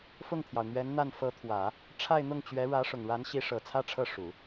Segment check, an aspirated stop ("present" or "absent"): present